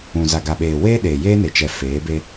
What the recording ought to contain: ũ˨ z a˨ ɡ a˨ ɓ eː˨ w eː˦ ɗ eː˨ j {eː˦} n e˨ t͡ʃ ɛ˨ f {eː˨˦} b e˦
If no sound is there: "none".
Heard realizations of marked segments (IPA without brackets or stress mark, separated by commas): eː˦, eː˨˦